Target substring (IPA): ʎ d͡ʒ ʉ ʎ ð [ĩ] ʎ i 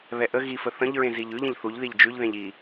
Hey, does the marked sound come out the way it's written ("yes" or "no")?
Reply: no